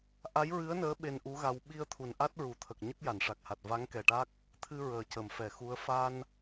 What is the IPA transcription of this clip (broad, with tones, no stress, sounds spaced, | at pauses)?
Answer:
ʔ a˧˥ j ɹ ɨ˧˥ ə̯ n əː˧˥ ɓ e˧ n ʔ u˧˥ ɣ a˧ w ɓ i˧ ə̯ t̪ʰ u˨˩ n ʔ a˦˥ t̚ ɹ u˨˩˨ t̪ʰ ə˨˩ k̚ ɲ ə˦˥ k̚ j a˨˩˨ n ʂ a˨˩ k̚ h a˨˩ t̚ v a˧˥ ŋ k ɛ˨˩ ʈ a˦˥ k̚ | t̪ʰ ɨ˧ ɹ əː˨˩ c ə˨˩˨ m f ɛ˨˩˨ x u˧˥ ə̯ f a˧ n